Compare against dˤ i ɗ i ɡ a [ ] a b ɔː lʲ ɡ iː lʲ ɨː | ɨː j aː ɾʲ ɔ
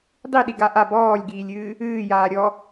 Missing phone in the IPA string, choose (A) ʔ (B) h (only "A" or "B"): A